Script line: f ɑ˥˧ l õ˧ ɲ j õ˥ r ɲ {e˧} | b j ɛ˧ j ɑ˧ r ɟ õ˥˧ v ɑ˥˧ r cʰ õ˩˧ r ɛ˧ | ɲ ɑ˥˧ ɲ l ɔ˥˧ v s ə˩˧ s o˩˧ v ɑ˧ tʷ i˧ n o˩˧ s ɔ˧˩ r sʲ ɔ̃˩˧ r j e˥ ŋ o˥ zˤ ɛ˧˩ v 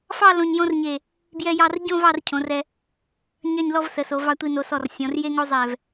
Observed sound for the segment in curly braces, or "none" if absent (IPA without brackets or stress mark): e˧˩